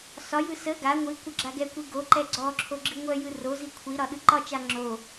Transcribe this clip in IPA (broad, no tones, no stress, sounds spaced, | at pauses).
s ɒ j ɯ s ə ɡ a ŋʷ i kʷ ə ɡ͡ǁ a ɡ ɛ kʷ i ɡ o ǃ ɛ ɡ͡ǀ ɔ ǁʰ o ɡ͡ǁ i ŋʷ œ j ɯ r o z i kʷʰ i ɾ ɒ ɗ ɯ ǃ ɒ t͡ʃ a ŋ͡ǁ o